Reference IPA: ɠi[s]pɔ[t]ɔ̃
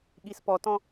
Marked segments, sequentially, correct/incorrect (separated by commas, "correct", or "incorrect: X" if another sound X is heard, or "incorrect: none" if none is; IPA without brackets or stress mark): correct, correct